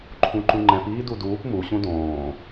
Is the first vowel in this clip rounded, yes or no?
yes